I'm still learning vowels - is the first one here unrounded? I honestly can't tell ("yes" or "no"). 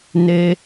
yes